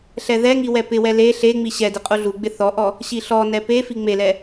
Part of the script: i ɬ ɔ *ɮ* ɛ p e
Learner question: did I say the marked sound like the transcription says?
no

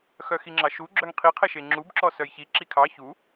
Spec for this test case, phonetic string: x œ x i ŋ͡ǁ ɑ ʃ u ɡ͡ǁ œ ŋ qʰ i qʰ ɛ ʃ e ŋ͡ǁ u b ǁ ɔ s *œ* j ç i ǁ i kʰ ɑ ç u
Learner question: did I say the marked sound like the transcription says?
yes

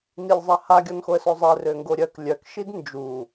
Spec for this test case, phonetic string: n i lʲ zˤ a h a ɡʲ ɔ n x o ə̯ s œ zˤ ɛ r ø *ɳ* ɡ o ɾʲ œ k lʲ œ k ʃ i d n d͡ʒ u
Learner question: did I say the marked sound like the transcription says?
no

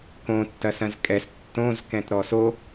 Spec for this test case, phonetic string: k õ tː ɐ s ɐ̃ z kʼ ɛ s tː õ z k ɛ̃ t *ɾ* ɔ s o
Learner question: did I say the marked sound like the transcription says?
yes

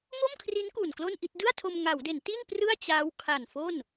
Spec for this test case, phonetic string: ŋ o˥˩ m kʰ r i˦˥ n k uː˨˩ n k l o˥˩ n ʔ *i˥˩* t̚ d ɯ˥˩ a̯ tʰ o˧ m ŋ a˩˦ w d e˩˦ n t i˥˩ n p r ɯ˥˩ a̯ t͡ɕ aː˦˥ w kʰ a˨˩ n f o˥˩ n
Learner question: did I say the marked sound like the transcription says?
yes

